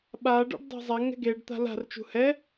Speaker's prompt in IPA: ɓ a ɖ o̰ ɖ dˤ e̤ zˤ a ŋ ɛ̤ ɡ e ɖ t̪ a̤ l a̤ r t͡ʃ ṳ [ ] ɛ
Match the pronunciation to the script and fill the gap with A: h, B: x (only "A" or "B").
A